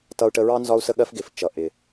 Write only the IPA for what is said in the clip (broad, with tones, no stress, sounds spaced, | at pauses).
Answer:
t ʌ˧ u̯ ʈ ə˧ ɹ ɑ˥ n z ɒ˧ u̯ s ə˧ ɠ ɜ˧ f ɡ ɪ˩ f t͡ʃ ʌ˩ ʔ ɪ˩